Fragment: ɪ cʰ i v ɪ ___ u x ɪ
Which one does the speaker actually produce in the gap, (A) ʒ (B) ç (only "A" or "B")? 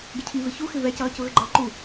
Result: B